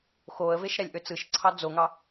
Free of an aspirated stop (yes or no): no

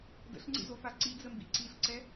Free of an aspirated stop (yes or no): yes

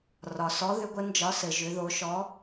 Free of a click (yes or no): yes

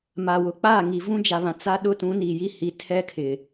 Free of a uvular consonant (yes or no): yes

